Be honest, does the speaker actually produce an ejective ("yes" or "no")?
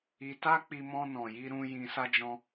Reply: no